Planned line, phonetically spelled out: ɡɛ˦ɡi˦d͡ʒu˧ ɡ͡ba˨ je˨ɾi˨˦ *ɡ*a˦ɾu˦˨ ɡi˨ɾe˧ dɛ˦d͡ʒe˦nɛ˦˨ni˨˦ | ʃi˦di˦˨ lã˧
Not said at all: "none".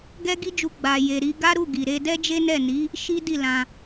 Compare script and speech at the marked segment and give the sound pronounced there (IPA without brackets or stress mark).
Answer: ɡ